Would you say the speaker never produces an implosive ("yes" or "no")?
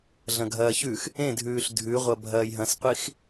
yes